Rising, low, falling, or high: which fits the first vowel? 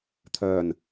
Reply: low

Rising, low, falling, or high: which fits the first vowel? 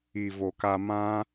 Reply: low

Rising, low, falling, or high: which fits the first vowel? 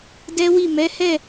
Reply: high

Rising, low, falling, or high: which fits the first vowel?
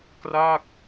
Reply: falling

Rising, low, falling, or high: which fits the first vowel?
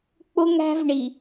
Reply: high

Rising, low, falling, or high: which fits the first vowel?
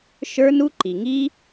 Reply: high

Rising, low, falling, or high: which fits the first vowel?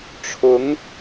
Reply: rising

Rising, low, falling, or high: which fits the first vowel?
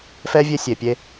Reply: high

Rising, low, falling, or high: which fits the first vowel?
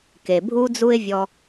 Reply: low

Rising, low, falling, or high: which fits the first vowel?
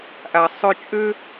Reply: low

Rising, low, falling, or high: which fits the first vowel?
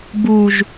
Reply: low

